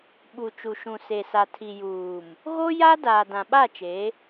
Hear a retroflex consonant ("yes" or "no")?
no